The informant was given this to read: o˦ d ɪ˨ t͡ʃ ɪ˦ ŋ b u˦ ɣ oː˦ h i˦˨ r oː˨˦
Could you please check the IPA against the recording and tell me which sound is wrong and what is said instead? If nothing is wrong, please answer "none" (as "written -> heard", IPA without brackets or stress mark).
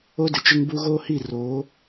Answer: none